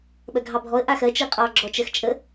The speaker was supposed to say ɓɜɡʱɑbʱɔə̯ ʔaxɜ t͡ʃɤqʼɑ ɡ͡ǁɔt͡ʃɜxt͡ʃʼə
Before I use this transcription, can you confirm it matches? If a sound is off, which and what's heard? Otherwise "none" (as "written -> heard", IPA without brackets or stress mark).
none